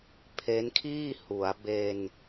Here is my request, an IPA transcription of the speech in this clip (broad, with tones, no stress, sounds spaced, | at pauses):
pʰ e˦˥ n kʰ iː˥˩ h u˩˦ a̯ b e˧ n